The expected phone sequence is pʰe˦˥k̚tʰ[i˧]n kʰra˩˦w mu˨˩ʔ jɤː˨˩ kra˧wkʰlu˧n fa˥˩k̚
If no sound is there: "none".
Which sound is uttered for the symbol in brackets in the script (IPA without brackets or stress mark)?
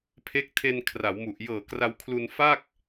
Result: e˧